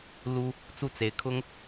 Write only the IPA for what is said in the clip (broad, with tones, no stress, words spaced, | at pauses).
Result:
lu˥ | t͡su˥˩t͡se˧˥ɪ̯kʰʊ˥ŋ